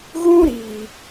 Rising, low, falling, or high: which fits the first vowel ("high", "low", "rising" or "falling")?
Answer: high